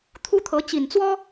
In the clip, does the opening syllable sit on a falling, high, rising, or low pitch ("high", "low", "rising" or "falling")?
high